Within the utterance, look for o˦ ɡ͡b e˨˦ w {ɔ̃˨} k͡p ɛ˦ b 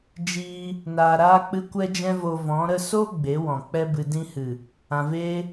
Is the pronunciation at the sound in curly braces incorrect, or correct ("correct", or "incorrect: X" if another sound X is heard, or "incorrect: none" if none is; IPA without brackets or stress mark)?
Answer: correct